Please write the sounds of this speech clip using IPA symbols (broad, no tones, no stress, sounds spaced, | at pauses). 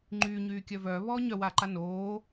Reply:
ŋ͡ǃ yː ɲ yː kʲ œ v œː β ɔː ɲ œ w aː ǃ a n oː